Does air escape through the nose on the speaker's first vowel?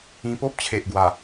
yes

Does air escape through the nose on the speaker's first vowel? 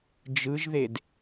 no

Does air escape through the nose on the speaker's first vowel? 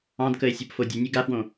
yes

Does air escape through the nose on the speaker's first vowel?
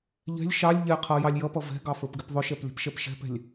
no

